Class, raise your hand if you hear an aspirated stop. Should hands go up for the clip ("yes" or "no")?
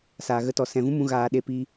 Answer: no